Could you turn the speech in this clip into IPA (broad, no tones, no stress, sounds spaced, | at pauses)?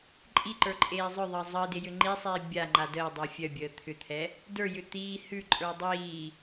ǃʼ i ǃ ə˞ ǃʼ eː zˤ œ ðˤ əː zˤ əː d e j ʏ ŋ͡ǃ i sˤ iː bʲ a ŋ͡ǃ a d əː dˤ ə˞ fʲ œ bʲ əː t̪ʰ ʏ t̪ʰ ɛ | d ə˞ j ʏ t̪ iː h ʉ ǃʼ ə˞ dˤ iː